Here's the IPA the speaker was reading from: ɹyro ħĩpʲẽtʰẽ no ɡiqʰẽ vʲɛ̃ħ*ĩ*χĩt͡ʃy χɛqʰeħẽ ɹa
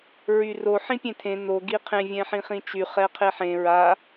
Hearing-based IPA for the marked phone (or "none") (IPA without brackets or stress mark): ĩ